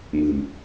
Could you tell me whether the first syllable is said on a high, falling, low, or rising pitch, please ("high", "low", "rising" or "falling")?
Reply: low